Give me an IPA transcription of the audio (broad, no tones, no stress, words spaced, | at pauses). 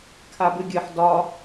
kʰabɨɡʲɨħ dɒ